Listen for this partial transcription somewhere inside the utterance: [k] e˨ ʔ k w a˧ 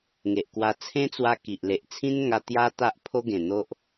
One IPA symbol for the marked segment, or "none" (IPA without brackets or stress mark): ŋ